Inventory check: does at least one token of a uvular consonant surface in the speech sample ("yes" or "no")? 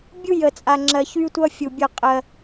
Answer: yes